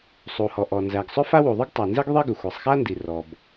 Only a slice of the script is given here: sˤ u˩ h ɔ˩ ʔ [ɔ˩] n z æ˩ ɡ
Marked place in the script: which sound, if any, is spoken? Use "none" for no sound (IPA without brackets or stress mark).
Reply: ɔ˩